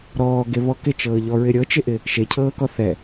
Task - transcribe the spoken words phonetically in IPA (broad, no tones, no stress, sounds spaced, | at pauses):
ɾ ɔː ɡ e β ɔ k ɪ t͡ʃ ɤː ʎ ɔ ɹ ɪ ɾʲ ɤ t͡ʃ ɪ ʔ ɪ | ʃ e cʰ ɤː k ɔ θ ɛ